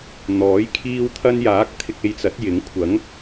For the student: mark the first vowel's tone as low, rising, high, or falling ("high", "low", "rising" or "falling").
rising